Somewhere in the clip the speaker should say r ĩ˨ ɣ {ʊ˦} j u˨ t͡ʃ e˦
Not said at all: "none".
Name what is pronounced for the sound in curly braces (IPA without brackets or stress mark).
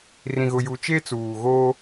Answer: ʊ˨